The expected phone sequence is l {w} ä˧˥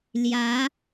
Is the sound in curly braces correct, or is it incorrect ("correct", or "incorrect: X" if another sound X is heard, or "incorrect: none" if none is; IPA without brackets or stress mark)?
incorrect: j